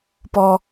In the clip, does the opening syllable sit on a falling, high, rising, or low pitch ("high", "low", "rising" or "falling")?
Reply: high